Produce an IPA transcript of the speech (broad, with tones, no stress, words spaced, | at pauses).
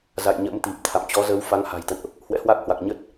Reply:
za̰˧˨jɲə̰˧˥m t̪i˨˩p̚t̪ʰa̰˧˨m t͡ɕɔ˨˦zə˨˦w fa˨˦ŋha̤˨˩jt̪ə̰˧˨nʔ | hwɛ̰˧˥hwa˦˥k̚hwa˨˩k̚ ɲə˦˥t̚